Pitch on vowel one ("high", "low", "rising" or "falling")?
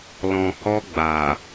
low